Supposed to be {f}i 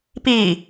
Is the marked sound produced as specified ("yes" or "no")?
no